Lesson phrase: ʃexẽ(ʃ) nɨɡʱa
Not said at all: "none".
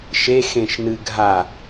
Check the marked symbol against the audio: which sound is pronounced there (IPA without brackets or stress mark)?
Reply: ʃ